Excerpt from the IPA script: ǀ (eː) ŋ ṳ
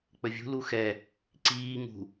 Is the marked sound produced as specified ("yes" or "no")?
no